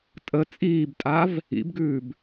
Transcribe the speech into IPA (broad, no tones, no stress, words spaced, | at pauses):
tʼə t͡sʼiːbtʼav | ḭbɡʉːb